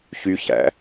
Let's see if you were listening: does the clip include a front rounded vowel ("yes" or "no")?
yes